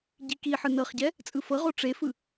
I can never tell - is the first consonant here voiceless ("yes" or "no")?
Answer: no